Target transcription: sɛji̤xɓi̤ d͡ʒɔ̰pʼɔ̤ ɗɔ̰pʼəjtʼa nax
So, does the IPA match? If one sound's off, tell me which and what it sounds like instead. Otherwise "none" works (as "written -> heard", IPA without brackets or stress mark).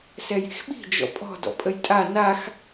ɗ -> d